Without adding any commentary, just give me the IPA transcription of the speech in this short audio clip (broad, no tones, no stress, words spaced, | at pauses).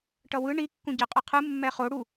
ʈʌwɯ ɳi kːũɟeqʼɯqʰɯ mːɛχo ɽu